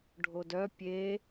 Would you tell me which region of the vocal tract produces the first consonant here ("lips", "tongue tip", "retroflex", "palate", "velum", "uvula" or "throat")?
retroflex